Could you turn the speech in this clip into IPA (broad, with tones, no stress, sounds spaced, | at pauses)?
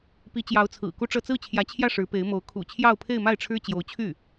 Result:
p i˧˥ t͡ɕ j ɑ˧˥ ʊ̯ t͡sʰ ɹ̩˨˩ k u˥ ʈ͡ʂ ɤ˥˧ t͡s ɹ̩˥˩ t͡ɕʰ j ä˧˥ t͡ɕʰ j ä˥˩ ʂ ɻ̩˧˥ p e˧˥ ɪ̯ m o˧˥ ʊ̯ kʰ ṵ˨˩ t͡ɕʰ j ɑ˥˧ ʊ̯ pʰ e˥˧ ɪ̯ m a˥˩ ɪ̯ ʈ͡ʂʰ ɻ̩˥ t͡ɕ j o˧˥ ʊ̯ t͡ɕʰ y˥˩